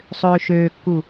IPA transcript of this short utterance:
sˤ øː ʃ øː kː u

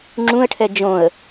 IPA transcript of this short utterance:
ŋ͡ǁ ũ ə̯ ʈʰ ɛ d͡ʒ õ ə̯

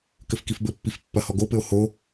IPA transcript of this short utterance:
k ɘ f k i f b ɘ pː i f pː ɐ h ɔ ɡ o p ɘ o̯ h o

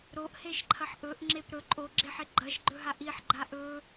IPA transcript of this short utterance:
ɾ o ʔ h e ʃ ǃʰ ɐ ħ ʔ ɵ ʔ ŋ͡ǁ e p ɾ ɵ ǃʼ o ɡ͡ǁ e ħ e ɡ͡ǃ ɐ ʃ ɡ͡ǃ ɵ ɦ a ʔ i ħ ɡ͡ǃ a ʔ ɵ

